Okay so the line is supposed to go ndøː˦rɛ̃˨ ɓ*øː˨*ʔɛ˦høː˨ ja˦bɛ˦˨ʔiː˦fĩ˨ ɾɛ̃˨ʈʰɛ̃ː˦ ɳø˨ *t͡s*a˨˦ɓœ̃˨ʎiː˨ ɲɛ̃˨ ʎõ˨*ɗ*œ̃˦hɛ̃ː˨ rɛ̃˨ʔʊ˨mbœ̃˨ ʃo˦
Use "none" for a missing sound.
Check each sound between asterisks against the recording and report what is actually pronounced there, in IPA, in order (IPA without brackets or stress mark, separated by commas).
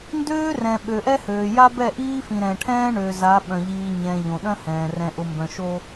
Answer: ø˨, z, ɗ